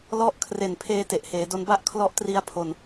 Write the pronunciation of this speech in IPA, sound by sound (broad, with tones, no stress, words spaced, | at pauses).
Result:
lɔ˦˥ʔkʰre˨˩n pʰeː˧te˨˩ʔheː˩˦ do˧nba˥˩ʔkʰlɔ˦˥ʔ tri˦˥a̯pʰo˧n